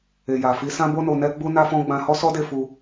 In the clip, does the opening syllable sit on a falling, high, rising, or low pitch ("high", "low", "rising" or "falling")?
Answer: low